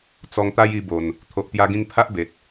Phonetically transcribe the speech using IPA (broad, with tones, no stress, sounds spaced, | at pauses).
t͡s ɔ˧ ŋ t̪ a˦ j i˧ b o˨˩ n | t̪ʰ o˨ ʔ t̪ j a˧ ɡ ĩ˧ ŋ pʰ a˦ ʔ b e˨ t̚